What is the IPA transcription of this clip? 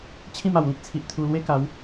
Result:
t͡ɕʰ ĩ˥˧ m a˨˩ w l ĩ˦ k̚ t͡sʰ i˨ ʔ t̪ʰ u˧ l w e˦ k a˨˦ w

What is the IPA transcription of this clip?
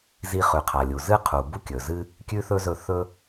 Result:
z i˧ χ ʉ˩ qʰ a˩ lʲ u˩ z ɨ˥ qʰ u˩ b u˥ kʲ ɵ˩ z ɨ˥ | kʲ ʉ˥ θ ɵ˥ z ɵ˧ θ ɵ˥

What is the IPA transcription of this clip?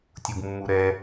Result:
tʲ u ɡ mː u ɾ ɛ

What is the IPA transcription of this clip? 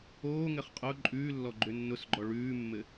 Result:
oː ŋ ɘ χ qʼ ʊ ǃʼ ʉː lː ɔ ɡ͡ǃ ʏ nː ʊ s ɡ͡ǃ ɔ ɭ ʉː mː ɘ

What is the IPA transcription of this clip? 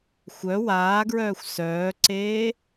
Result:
xʷ œ w aː ɡ ɹ œː xʷ s œː ǀ eː

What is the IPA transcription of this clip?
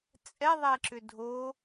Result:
t͡sʼ ɛ ðˤ ɛ ǁ ʏ dʱ o

